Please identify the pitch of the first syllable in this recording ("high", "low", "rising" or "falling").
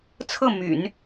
falling